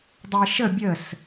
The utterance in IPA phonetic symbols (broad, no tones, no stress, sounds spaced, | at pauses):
dˤ e ʃ ə bʲ ə s